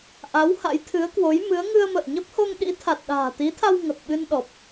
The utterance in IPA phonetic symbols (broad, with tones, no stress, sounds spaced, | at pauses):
ʔ a˨˦ w h a̰˧˥ j t̪ʰ ɨ˨˦ ə̯ k w o˨˦ j m ɨ˨˦ ə̯ ŋ ɨ˧ ə̯ m ə̰ː˧˨ ɲ ə˦˥ p̚ h o˧ ŋ ɗ ḭ˧˥ t̪ʰ a˨˩ t̚ ɗ a̤ː˨˩ t̪ i˨˦ t̪ʰ a˧ w ŋ ə˨˩ p̚ ɓ ɨ˧ n ɗ ɔ˨˩ p̚